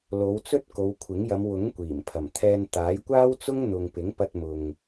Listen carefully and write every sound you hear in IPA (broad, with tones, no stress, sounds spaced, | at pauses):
l o˨˧ w t͡s ɵ˥ t̚ k o˨˧ w kʷʰ ɪ˨˥ ŋ j ɐ˨˧ m w ʊ˨˥ ŋ kʷ iː˨˩ m pʰ ɐ˨˩ m t̪ʰ ɛː˧ n t̪ aː˨˥ j kʷ aː˥ w t͡s ʊ˥ ŋ n̪ ʊ˨ ŋ p ɪ˨˥ ŋ p ɐ˧ t̚ m ʊ˨ ŋ